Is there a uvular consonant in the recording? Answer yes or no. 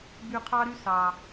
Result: yes